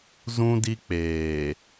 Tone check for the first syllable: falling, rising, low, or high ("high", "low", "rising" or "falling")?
high